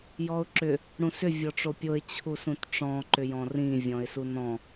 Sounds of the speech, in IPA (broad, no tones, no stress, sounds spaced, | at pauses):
j ɔ ʊ̯ ǁ ʏ | ɽ ũ s ʏ vʲ ɔ ʈ͡ʂ o pʲ o ɪ̯ t͡ɕʰ u s ũ t ʈ͡ʂ ɔ̃ ǃ ʏ j ɔ̃ r ĩ vʲ ɔ̃ ɪ̯ s u n ɔ̃